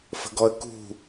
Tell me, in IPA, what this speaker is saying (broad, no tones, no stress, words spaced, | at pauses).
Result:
fə̤ɡɔə̯kṳ